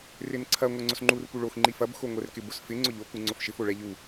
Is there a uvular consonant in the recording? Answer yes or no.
no